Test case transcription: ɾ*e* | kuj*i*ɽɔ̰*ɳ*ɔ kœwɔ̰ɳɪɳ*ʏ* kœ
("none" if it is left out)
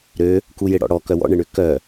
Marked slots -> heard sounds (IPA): ø, ɪ, ɽ, ʏ

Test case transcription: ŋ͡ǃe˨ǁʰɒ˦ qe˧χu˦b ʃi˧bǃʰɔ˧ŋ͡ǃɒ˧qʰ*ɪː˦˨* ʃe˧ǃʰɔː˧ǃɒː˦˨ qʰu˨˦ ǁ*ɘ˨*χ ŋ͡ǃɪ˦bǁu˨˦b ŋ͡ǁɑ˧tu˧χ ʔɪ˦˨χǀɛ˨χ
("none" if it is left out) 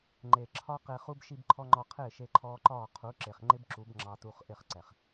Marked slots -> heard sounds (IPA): ɪː˦˨, e˨

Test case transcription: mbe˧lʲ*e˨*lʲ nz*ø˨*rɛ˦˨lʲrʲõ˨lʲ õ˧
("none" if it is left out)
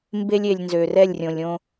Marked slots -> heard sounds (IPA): e˨, ø˨

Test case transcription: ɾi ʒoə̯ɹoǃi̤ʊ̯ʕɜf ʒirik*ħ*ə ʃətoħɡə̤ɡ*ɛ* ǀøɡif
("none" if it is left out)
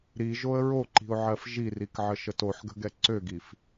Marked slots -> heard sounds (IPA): ʕ, ɛ

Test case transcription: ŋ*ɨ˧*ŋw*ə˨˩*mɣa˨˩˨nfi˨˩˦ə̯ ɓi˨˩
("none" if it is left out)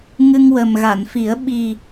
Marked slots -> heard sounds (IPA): ɨ˧, ə˨˩

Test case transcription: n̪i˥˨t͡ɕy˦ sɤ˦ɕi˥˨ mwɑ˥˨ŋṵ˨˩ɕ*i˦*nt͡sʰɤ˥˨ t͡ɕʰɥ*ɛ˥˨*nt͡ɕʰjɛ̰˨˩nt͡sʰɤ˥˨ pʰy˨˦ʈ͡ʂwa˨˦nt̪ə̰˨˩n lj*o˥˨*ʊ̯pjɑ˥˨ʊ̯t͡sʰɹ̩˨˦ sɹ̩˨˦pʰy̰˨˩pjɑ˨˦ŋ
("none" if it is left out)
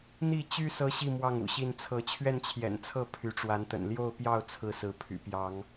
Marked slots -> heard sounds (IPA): i˥˨, ɛ˥˨, o˥˨

